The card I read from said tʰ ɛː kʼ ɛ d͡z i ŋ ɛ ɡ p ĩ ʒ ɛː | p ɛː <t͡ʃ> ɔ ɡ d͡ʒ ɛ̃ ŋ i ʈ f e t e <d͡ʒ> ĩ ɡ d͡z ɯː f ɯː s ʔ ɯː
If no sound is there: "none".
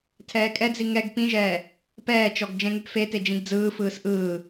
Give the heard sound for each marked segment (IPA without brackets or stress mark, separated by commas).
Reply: t͡ʃ, d͡ʒ